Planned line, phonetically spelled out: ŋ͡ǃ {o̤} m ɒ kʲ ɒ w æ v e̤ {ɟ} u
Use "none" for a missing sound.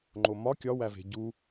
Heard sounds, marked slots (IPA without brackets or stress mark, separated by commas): o, ɟ